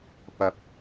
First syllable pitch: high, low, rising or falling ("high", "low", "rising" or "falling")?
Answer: rising